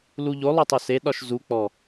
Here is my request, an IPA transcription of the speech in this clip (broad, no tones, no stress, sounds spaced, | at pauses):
l u ʎ o lˠ o tˤ o s e ɗ ɒ ʃ z u k͡p ɔ